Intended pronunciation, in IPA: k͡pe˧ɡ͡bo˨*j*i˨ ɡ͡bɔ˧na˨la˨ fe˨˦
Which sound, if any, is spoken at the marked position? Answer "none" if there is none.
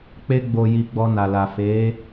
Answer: j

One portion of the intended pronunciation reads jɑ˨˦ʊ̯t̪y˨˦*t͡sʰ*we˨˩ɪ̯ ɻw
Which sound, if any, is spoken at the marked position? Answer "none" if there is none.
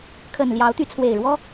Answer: t͡sʰ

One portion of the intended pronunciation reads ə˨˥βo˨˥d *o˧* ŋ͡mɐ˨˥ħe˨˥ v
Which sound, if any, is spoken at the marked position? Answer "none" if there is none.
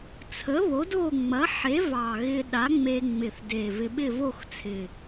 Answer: o˥˧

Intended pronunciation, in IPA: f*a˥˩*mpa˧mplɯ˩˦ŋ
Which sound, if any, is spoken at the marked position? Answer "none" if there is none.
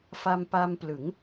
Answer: a˧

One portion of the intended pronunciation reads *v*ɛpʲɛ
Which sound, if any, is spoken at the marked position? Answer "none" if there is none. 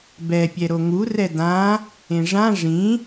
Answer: b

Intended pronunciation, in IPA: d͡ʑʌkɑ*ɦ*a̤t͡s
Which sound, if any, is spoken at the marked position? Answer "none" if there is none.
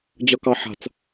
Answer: ħ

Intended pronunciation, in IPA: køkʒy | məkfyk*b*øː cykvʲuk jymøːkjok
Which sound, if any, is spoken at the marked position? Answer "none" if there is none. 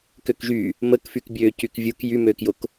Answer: bʲ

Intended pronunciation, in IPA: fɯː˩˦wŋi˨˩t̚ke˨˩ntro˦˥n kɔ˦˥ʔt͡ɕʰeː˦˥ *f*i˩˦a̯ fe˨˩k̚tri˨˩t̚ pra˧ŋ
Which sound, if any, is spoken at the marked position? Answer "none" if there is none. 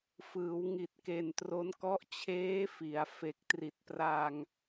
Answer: f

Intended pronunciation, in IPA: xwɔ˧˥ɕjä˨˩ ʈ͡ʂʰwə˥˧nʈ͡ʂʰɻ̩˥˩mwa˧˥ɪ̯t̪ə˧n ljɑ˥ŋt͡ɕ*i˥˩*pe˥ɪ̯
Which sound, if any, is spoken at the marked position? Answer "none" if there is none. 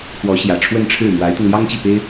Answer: i˥˩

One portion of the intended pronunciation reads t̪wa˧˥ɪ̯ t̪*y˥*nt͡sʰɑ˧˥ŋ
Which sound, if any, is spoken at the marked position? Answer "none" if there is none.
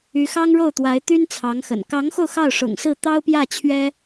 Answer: y˥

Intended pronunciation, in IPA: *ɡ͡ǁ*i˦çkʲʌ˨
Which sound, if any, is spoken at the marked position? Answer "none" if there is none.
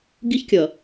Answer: ɡ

